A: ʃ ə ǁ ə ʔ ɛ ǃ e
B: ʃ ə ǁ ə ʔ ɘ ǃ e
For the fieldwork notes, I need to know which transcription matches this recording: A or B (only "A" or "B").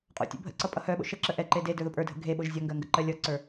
A